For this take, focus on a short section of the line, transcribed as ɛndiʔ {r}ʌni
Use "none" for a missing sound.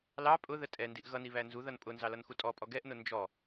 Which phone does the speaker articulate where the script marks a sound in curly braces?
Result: ɣ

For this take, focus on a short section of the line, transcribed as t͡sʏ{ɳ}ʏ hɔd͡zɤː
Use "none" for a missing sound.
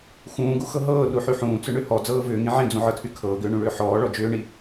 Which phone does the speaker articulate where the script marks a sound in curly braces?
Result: ɳ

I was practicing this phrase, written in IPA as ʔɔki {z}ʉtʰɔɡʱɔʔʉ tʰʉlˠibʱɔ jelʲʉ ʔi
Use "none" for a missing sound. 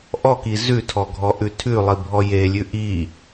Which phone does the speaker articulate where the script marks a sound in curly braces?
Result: z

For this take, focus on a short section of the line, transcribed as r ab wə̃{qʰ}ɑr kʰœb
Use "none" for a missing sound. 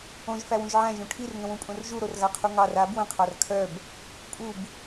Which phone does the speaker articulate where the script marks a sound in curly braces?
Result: qʰ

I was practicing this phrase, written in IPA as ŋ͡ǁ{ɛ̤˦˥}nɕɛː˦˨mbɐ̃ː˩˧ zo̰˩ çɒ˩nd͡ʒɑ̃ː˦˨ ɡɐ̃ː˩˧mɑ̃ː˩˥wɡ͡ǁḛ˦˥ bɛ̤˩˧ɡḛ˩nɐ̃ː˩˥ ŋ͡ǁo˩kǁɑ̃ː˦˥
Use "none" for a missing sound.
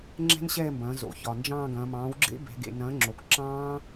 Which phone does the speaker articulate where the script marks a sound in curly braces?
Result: ɛ̤˦˥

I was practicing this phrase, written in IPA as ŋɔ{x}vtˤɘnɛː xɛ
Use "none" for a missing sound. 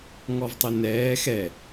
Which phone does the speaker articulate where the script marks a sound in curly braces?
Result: none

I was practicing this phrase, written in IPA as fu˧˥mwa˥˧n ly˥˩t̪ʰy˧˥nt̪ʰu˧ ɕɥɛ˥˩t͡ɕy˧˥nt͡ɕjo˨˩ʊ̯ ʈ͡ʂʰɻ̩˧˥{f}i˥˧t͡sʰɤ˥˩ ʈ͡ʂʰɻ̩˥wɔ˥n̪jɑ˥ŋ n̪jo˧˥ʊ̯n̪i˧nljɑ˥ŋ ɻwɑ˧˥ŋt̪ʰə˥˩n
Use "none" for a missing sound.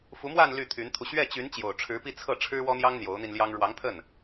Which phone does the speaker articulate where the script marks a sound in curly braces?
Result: p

